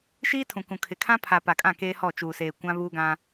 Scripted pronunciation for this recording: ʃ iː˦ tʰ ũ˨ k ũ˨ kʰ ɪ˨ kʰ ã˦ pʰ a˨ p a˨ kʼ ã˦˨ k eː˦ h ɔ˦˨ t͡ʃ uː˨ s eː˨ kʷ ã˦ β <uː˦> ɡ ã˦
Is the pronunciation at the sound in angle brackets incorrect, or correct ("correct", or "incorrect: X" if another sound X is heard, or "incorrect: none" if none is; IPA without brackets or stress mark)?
correct